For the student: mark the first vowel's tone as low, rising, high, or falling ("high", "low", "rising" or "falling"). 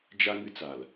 high